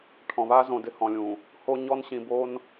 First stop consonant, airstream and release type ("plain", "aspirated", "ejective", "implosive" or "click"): aspirated